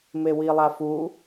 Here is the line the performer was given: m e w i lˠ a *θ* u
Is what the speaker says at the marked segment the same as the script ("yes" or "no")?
no